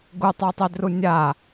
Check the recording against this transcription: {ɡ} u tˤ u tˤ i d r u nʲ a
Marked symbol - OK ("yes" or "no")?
yes